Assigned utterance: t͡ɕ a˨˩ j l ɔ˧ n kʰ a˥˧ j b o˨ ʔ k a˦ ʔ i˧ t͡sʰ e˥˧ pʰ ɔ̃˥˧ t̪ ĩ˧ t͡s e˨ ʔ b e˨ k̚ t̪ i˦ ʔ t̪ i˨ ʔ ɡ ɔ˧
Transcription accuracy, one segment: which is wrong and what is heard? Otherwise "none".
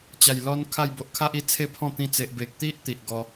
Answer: k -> kʰ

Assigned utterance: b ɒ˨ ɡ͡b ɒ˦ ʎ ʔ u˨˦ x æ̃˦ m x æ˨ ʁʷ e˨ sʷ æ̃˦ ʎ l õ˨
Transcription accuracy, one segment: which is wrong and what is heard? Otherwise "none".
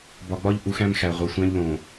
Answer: none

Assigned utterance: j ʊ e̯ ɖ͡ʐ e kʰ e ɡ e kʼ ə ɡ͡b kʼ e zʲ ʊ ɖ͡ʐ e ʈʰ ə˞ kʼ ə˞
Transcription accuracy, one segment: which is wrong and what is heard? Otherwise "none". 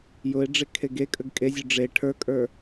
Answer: ɡ͡b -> ɡ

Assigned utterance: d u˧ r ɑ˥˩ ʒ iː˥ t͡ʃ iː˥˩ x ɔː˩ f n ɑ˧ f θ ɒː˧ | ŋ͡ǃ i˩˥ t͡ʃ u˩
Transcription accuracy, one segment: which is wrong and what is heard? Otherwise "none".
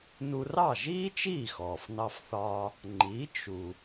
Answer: d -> n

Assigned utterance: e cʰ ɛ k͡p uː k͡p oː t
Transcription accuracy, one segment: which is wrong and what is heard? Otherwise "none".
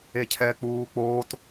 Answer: none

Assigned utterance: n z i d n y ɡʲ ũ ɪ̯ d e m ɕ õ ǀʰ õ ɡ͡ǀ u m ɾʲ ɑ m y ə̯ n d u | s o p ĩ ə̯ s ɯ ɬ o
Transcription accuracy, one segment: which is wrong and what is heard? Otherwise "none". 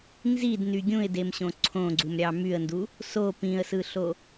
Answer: none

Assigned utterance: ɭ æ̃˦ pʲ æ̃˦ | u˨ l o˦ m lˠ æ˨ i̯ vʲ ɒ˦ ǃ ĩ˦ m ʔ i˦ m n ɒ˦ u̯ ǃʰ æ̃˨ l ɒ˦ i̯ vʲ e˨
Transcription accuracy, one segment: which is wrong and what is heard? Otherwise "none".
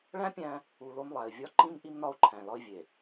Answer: none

